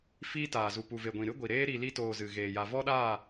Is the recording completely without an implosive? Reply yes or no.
no